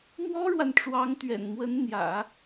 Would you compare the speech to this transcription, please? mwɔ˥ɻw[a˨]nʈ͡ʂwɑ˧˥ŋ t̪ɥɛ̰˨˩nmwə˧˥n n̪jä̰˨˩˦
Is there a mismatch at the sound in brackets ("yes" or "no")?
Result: no